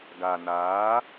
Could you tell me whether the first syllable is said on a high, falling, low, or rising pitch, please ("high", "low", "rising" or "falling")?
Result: low